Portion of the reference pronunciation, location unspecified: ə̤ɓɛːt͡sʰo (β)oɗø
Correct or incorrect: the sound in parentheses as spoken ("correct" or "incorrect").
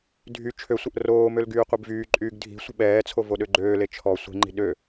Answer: incorrect